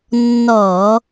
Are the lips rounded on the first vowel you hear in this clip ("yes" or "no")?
yes